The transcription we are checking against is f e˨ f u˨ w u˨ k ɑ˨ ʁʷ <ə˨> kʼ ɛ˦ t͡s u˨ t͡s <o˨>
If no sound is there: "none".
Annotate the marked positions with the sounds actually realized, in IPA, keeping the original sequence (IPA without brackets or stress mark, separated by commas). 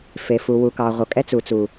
ʌ˨, u˨